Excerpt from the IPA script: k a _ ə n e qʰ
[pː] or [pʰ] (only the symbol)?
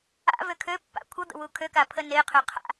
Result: pʰ